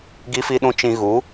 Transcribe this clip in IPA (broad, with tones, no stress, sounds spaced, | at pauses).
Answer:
ɡ i˦ f i˦ ɗ ũ˦ t͡ʃ ĩ˧ ɣ u˨˦